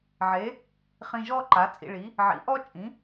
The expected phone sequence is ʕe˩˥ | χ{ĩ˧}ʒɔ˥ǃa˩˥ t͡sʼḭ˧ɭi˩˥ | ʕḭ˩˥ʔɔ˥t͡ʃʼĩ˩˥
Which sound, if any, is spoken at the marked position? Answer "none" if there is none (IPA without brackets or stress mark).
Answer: ĩ˧